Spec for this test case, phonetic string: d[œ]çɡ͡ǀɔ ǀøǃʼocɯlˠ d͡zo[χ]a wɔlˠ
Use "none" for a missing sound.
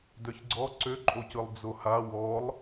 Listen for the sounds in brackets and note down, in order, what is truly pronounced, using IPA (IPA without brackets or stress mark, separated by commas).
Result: œ, h